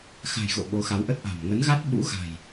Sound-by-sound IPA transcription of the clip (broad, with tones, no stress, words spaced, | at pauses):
xa̤˨˩jɣo̰˧˨ ɓo˨˦xa˨˦wʔə˦˥t̚ʔa̤˨˩m ŋə˨˦nɣa˦˥t̚ ɓṵ˧˥ ɣa̤˨˩j